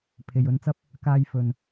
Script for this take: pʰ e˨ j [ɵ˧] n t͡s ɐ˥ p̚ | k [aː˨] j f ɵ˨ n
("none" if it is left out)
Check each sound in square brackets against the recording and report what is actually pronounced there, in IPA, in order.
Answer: ɵ˧, aː˨

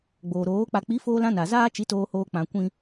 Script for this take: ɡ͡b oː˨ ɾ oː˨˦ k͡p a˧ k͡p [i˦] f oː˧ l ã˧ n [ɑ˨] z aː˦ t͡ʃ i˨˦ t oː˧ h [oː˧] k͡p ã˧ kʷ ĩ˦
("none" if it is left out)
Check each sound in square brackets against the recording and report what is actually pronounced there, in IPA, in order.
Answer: i˨˦, a˨, oː˧

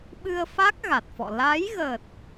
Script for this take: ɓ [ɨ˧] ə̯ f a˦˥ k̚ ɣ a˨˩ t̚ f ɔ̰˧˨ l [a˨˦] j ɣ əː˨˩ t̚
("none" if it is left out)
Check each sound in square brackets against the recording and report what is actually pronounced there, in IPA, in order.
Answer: ɨ˧, a˨˦

